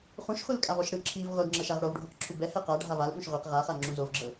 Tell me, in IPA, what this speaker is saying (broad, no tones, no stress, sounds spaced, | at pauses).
χ ũ ʃ χʷ ɯ l kʼ a v ɔ ʃ ɽ ɯ ǁʰ i v ʁʷ ɛ ɡ ŋ͡ǁ ɤ ʃ a ʁ ɽ o v ɖʱ ũ q ǁʰ u b ɛ h ɛ q a ɖʱ a v a l ɓ ũ ʃ ʁʷ e q ʁ a χ a ŋ͡ǁ ũ z o v ɡ͡ǁ ɤ